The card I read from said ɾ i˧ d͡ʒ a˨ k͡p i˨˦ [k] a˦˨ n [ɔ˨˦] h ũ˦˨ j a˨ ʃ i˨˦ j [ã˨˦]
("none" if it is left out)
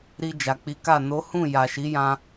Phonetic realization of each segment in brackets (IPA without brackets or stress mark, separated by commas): k, o˨˦, ã˧